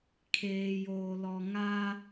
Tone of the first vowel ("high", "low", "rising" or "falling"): low